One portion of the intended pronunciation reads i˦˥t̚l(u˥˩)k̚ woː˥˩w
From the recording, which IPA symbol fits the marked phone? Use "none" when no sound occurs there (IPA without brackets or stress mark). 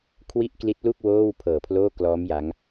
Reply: u˥˩